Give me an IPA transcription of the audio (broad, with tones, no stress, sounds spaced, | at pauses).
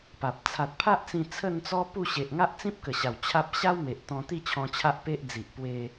p a˨ p̚ t͡sʰ a˨ t̚ pʰ a˦ ʔ t͡s ĩ˧ t͡sʰ ə˥˧ n t͡s ɔ˦ p u˥˧ ɕ e˨ ʔ ŋ a˦ ʔ t͡s ĩ˦ p̚ k ə˨˩ ɕ a˨˩ w t͡ɕʰ a˦ p̚ ɕ a˦ w m e˨ ʔ t̪ ɔ̃˧ t̪ i˥˧ t͡ɕʰ ɔ̃˧ t͡ɕʰ a˦ ʔ p e˦ ʔ d͡z i˨ ʔ p w e˧